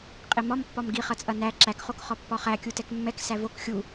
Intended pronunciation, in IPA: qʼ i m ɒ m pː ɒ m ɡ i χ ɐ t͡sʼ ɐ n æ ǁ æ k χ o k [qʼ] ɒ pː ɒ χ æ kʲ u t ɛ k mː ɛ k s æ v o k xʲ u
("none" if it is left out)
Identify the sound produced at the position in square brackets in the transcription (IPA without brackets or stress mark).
χ